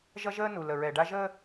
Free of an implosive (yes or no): yes